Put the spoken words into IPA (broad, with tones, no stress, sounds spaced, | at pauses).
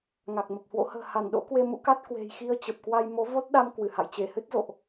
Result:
ŋ a˨˩ k̚ m ə˨˩ p̚ h w o̰˧˥ h ə̤ː˨˩ h a˧˩ n ɗ o̰˧˥ k w e˧ m ṵ˧˥ k a˦˥ t̚ k w e̤˨˩ j x i˧ ə̯ t͡ɕ ə˨˩ p̚ k w a˧ j m o˨˦ v o˦˥ t̚ ɗ a˧ m k w ɨ˧˩ h a̰˧˨ j t͡ɕ e˧˩ h ɨ˦˥ t̚ z o̰˧˨ ʔ